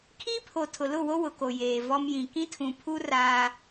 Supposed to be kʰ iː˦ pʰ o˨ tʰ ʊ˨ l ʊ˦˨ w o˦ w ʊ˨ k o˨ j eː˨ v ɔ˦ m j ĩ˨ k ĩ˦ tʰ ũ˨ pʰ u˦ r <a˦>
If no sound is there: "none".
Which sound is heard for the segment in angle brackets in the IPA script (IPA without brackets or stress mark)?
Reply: aː˦